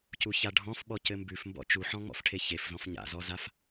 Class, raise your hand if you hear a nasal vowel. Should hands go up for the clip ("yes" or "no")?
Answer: yes